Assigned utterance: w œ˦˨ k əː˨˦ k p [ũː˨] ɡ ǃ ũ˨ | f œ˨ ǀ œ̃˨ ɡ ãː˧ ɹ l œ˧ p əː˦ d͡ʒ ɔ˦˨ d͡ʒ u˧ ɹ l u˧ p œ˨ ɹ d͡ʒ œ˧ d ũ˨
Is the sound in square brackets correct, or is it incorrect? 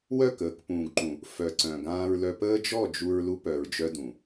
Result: correct